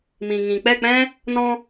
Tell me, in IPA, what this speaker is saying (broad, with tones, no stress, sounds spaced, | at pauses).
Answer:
m ĩ˨ ŋ ĩ˨ k͡p ɛ˦˨ k͡p ɛ̃˦ | n ɔ̃˧